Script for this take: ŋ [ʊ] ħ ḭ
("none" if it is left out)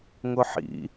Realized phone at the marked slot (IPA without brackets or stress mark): ʊ